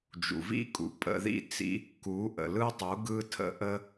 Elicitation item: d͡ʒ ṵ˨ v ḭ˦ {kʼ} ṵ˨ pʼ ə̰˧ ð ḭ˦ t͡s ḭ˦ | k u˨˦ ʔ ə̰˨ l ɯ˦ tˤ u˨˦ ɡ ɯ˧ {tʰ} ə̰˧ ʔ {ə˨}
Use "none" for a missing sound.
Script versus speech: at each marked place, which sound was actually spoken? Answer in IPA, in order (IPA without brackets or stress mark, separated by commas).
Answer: kʼ, tʰ, ə˧